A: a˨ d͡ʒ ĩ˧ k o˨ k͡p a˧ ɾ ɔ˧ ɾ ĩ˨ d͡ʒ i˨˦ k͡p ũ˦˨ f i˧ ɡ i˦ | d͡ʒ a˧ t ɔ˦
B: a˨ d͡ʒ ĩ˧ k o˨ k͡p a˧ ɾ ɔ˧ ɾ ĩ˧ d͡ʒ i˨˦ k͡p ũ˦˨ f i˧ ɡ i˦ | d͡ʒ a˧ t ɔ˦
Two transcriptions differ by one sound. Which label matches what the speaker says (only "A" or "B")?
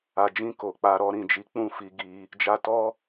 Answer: A